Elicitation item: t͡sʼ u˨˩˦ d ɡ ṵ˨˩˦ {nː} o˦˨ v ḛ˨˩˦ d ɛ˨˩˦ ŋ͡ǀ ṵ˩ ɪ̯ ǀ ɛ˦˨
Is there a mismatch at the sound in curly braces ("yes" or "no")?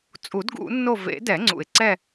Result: no